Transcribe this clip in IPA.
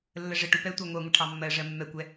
lː ə ʐ ə ʈ u p ɛ tʷ ɑ ŋʷ ɛ ŋʷ ə ʈʰ ɑ mː ɜ ʐ ɜ mː ɛ kʷ ɛ

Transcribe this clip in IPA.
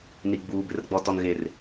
n i˨ ɡ͡b uː˨ b ɪ˨˦ r ɡ͡b ɔ˨ t ɔ˨ n ɣ e˨ r

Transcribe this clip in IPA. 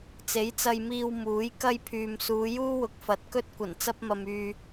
t͡s e˨˥ j t͡s ɐ˧ j m iː˧ w m uː˨˥ j k ɐ˥ j pʰ yː˨ m s uː˨˧ j uː˥ w ʊ˨ k̚ f ɐ˨˥ t̚ k ɵ˥ t̚ kʷ ɐ˨˩ n t͡s ɐ˥ p̚ m ɐ˧ m yː˧

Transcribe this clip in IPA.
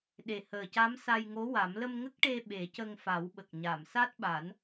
ɗ e˨˩ h əː˨˩ c a˧˥ m s a˧ j ŋ o˧˥ w a˨˩˦ m l ə˧ m ŋ ə˦˥ k̚ ʈ e˧ ɓ e˨˩˦ c ə˧ ŋ f a˨˩˦ w ɓ ə˨˩ k̚ ɲ a˨˩˨ m s a˦˥ t̚ ɓ a˨˩˦ n

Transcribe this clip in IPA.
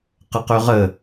q ə q ø ʁ ə

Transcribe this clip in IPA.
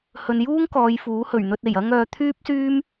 h ɵ˨ n j uː˥ ŋ k ɔː˨˧ j f uː˨˥ h ɵ˨˩ ɥ n̪ ɵ˧ t̚ e˨˩ j ɐ˥ ŋ œː˧ t̪ʰ yː˥ p̚ s yː˥ m

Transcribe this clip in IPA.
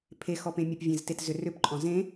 pʰ e x ɔ p ẽ mʲ ə p vʲ ẽ z t e t z ʏ r ʏ p ǃʼ ɔ̃ z ẽ

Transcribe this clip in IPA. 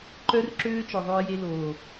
ǃ œ˦ r ǁ øː˦ t͡ʃ ɔ˨ ðˤ œ˧ ɪ̯ j e˧ l oː˨

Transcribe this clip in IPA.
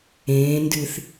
ẽː n d ɨ θ

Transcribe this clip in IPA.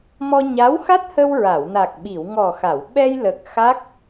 m ɔ˧ ɲ a˧˥ w x a˦˥ t̚ h ə˧ w ɹ a˨˩˨ w n a˨˩ k̚ ɓ i˨˩˨ w ŋ ɔ˨˩ x a˨˩˨ w ɓ ɛ˧ j l ə˨˩ k̚ x a˦˥ k̚

